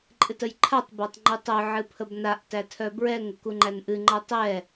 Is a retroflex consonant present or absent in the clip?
absent